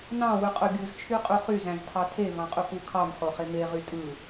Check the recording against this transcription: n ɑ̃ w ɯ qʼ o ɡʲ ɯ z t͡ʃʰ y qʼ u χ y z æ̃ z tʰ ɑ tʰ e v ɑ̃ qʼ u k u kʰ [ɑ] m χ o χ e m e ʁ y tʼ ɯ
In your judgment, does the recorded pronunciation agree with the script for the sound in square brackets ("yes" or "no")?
yes